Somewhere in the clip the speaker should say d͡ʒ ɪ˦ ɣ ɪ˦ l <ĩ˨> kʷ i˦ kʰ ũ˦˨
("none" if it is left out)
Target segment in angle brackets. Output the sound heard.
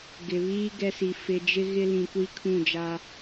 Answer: ĩ˨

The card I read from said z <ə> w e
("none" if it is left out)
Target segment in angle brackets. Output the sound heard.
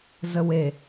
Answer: ə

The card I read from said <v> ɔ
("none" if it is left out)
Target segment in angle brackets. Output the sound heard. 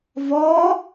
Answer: v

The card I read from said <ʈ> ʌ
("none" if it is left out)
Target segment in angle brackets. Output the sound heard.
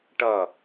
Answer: ʈ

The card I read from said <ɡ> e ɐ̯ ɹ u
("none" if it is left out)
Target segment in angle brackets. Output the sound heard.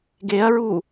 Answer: ɡ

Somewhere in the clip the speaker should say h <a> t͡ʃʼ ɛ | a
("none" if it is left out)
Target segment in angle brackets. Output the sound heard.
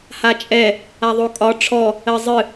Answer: a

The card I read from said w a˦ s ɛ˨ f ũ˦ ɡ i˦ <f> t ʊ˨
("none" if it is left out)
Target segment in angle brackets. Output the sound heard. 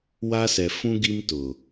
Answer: m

